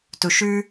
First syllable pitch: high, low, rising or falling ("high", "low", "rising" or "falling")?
low